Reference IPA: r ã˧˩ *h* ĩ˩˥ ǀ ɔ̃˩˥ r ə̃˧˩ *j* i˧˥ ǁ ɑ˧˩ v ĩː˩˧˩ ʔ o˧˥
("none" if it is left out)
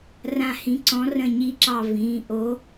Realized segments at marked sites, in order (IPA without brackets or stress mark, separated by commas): h, ɲ